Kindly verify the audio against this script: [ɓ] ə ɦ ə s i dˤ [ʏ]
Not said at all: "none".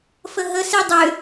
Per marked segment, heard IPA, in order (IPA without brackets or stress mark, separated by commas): f, ʏ